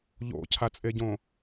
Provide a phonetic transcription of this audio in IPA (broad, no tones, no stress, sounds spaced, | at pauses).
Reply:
ʎ o̰ cʰ a t͡sʼ e ɟ õ